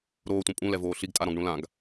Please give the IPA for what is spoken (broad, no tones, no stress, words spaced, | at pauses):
ɾoːtʷɛ̃ pʼũlɛvoː ɬiɡtʼaɾɔ̃ɡɳũ lãɡ